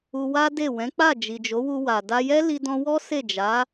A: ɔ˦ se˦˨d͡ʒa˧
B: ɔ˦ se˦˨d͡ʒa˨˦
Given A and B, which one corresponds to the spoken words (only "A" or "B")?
B